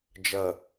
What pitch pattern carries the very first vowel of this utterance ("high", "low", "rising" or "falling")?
low